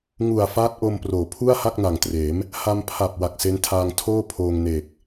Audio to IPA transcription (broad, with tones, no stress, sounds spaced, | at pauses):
ŋ u˨˩ a̯ f aː˦˥ t̚ ʔ o˧ m p r oː˩˦ pʰ u˥˩ a̯ h a˥˩ k̚ n a˨˩ ŋ t r eː˩˦ m | h a˧ m pʰ a˨˩ p̚ w a˨˩ k̚ s e˦˥ n tʰ aː˧ ŋ tʰ oː˥˩ pʰ oː˧ ŋ n eː˨˩ k̚